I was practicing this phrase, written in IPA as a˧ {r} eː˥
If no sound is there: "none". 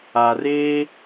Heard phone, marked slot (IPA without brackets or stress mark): r